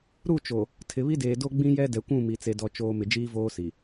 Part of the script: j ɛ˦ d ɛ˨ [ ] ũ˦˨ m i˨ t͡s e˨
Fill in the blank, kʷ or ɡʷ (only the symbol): kʷ